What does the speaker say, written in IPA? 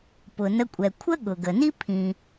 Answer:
p ʊ˩ n ə˧ kʷʼ ɛ˩ kʷʰ ə˥ ɠ ʊ˩ ɡ ə˩ n i˥ pʰ ĩ˩

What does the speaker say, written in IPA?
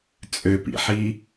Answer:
t͡sʼ ø p ḭ ħ i

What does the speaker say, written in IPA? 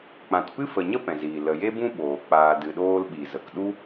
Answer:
k͡p ã˨ t p ɨ˦ f ə˨ ɲ ə˦ p ɛ̃˨ z iː˨ l ə˨ j e˦ b ũ˦ ɓ oː˨ k͡p aː˨ d ɨ˨ ɗ oː˧ l ɓ i˨ z ə˨ k ɗ u˦

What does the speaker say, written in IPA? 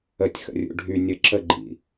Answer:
ə tʲ x ə̰ rʲ ṵ ɖʱ y nʲ ə ǁ ə ɡ͡ǃ ḭ

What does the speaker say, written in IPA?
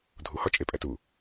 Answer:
dʱ u h ɒ t͡ʃʼ e pʼ æ t u

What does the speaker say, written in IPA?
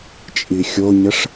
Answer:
t͡ʃʼ i xʲ o ɲ ə ʂ

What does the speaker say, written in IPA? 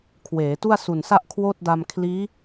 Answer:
kʰ w eː˩˦ t u˥˩ a̯ s u˨˩ n s a˥˩ ʔ kʰ w oː˥˩ t̚ d a˧ m kʰ l iː˦˥

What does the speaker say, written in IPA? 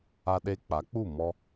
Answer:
a˧ ɗ e˧ k͡p a˨˦ k͡p u˦˨ m ɔ˧

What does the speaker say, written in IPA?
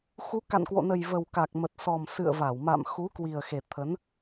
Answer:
x u˨˦ k a̰˧˨ n k w o̰˧˨ n ə˨˩ j v ə˨˩ w k a˨˩ k̚ m ə˨˩ t̚ s ɔ˨˩ m s ɨ̰˧˨ ə̯ v a˧˩ w m a̰˧˨ m x u˨˦ k w i˨˩ ə̯ x e˨˩ t̪ʰ ə˨˦ n

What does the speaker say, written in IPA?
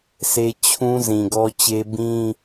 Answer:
s e˦ t͡ɕʰ ũ˦ z ĩ˨ ɡ ɔ˦ t͡ɕ e˦ b ĩ˦

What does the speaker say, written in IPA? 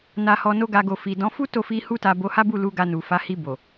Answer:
n a˧ h ɔ˧ n o˦ ɡ a˧ ɡ o˨ f i˨ d ɔ̃˨˦ f u˦ t o˦˨ f i˧ h u˦ t a˧ b o˧ h a˦ b u˦˨ l u˧ ɡ a˧ n u˨ f a˨˦ h i˧ b o˨

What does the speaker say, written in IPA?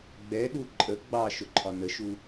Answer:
ɡ͡b ɛ ɗ u ǃʼ ə ɡ͡b ɑ ʃ ʊ ǃʰ ɒ n ə ʃ u

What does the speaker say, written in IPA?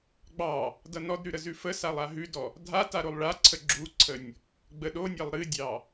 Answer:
ɡ͡b ɑ | d ʌ n ɔ d ɾ ʉ ɾ ə z ʉ f ə s a lˠ a ɦ ʉ d ɔ | dʱ a t a ɾ o lˠ ɭ a ǀʰ ə ɡ͡ǁ u ǀʰ ə nʲ | ɡ͡b ə ɗ o nʲ ɑ lˠ ɾ ɨ dʲ ɑ

